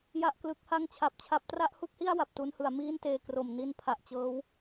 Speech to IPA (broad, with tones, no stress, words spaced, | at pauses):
ja˥˩ʔklɯ˦˥k̚ha˥˩ŋ t͡ɕʰa˦˥p̚t͡ɕʰa˦˥p̚ tra˥˩ʔhu˥˩k̚hi˥˩a̯ wa˨˩p̚tu˦˥nhɯ˩˦a̯ miː˥˩nteː˧ kro˨˩mni˧n pʰa˨˩ʔt͡ɕɤː˦˥w